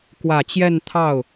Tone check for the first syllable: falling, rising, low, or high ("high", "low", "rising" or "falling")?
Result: low